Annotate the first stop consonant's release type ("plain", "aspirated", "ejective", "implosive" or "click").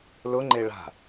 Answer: click